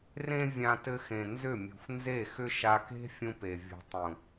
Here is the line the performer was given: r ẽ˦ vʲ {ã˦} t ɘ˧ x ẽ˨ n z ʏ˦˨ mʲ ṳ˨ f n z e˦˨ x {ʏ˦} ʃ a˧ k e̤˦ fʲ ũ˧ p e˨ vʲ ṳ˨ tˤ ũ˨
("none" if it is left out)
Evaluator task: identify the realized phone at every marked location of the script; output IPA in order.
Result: ã˧, ʏ˦

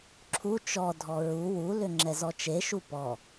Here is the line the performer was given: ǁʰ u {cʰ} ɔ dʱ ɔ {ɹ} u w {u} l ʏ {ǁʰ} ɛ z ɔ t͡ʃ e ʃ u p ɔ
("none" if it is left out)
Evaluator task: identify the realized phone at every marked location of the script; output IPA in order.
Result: t͡ʃ, ɹ, u, ŋ͡ǁ

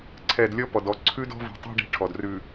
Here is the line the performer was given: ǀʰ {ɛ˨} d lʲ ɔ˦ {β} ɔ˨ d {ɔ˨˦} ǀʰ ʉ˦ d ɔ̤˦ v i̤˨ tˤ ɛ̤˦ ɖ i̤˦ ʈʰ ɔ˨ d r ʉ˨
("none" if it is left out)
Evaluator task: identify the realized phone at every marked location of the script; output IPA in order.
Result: ɛ˨, p, ɔ˨˦

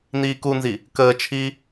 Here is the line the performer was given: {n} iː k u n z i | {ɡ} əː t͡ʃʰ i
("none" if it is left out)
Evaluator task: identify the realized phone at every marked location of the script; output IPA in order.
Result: n, k

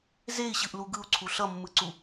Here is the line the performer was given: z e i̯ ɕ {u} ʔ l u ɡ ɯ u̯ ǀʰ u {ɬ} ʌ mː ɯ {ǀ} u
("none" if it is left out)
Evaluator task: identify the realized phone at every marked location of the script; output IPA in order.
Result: ɯ, ɬ, ǀ

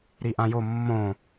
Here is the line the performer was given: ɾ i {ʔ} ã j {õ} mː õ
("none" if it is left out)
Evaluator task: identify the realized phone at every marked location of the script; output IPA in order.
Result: ʔ, o

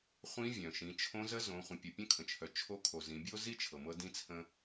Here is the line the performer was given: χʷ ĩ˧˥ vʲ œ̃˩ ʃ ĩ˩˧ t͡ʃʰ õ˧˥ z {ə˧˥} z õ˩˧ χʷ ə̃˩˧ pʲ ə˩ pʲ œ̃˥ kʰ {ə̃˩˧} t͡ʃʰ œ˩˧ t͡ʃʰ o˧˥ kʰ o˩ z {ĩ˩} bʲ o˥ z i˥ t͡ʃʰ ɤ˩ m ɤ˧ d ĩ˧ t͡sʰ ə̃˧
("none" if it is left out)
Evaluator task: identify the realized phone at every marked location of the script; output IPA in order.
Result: ə˧˥, ə̃˩, ĩ˩˧

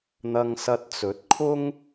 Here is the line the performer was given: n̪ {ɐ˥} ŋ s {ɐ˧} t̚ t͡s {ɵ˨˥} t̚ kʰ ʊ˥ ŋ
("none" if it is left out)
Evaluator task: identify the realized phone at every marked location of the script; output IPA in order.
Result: ɐ˧, ɐ˧, ɵ˨˥

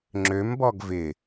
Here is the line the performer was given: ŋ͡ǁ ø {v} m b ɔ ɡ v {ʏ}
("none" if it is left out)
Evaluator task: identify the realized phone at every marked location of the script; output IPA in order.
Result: none, ɪ

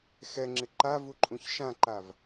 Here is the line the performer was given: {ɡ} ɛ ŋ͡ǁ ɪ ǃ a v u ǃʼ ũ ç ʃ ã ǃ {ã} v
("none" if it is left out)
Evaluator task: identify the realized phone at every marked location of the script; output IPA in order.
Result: x, a

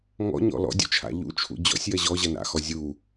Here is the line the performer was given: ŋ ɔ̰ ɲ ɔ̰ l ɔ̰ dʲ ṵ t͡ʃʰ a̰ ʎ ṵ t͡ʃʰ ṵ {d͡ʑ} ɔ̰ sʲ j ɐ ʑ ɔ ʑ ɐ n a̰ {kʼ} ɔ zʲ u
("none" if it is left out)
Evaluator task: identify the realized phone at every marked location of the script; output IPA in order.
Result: d͡ʑ, x

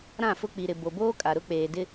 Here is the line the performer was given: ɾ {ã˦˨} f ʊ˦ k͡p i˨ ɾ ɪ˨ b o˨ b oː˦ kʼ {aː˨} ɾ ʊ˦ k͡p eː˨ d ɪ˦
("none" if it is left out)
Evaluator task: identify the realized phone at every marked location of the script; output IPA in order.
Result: ã˦˨, a˨

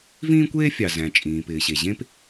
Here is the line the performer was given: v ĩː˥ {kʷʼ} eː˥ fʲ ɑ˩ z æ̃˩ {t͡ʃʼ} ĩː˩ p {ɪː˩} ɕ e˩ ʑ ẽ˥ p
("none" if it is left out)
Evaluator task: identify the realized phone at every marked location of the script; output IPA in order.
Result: kʷ, t͡ʃʼ, ɪː˩

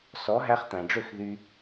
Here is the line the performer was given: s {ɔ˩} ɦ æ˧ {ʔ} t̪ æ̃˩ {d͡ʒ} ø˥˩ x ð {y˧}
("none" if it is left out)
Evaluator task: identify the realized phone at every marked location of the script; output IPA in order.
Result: ɔ˩˥, χ, ɖ͡ʐ, y˧

